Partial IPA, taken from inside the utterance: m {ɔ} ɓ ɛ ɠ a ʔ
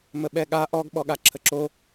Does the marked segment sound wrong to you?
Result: yes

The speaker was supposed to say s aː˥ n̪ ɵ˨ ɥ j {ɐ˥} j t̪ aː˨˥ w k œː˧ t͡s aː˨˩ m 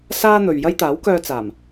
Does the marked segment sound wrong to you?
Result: no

